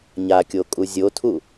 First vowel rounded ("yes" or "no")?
no